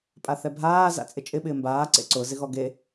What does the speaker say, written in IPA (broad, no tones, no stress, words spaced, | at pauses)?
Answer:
pʼaθɛbʱaː za̰t͡sʼɪt͡ʃʼɪ ɓɪːmbaː ǀḛǀʊ zɪɣɔɡe